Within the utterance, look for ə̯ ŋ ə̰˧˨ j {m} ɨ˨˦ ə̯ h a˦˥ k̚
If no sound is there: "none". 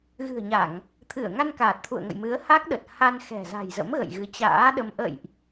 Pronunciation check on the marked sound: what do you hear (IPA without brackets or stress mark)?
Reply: m